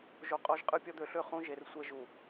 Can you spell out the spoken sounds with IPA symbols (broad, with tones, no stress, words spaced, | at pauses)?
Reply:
ʒo˦ qʼɔ˦ʒqʼɯ˦ pʲɔ˦d̪ø˨˦ɬø˦˨ χũ˦ʒe˨r sʷɛ˦ʒu˨